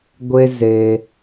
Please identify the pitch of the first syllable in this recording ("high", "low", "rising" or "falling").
high